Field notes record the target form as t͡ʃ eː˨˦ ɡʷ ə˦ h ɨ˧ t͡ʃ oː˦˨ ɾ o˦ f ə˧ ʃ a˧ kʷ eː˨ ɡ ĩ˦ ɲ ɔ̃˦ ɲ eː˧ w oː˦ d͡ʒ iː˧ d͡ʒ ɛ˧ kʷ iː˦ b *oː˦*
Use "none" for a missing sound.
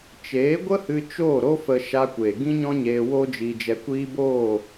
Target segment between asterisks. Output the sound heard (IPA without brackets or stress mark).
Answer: oː˦˨